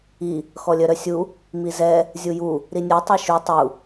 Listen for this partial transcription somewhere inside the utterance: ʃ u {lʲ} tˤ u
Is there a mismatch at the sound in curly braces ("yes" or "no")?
yes